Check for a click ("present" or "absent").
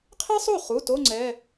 present